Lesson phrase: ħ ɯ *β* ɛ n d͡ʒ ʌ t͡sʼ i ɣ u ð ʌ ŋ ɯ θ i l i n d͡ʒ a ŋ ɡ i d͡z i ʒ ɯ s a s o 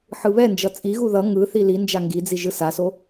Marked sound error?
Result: no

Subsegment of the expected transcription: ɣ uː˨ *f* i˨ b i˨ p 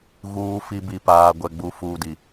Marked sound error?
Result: no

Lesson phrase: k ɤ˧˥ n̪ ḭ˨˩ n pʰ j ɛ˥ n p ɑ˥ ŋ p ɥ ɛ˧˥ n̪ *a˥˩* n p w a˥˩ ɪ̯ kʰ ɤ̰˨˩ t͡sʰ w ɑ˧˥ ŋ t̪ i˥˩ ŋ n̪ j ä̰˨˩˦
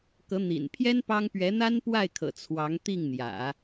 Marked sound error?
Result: yes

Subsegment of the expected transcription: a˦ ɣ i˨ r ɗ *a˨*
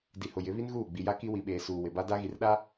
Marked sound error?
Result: yes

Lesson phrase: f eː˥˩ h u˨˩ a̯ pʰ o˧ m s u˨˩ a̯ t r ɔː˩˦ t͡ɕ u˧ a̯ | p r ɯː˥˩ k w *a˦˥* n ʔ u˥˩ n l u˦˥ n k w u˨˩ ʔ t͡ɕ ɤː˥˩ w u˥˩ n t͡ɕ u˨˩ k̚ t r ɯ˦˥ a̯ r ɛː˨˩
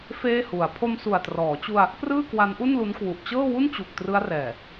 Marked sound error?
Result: no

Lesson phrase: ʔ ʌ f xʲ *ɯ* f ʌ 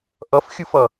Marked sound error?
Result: no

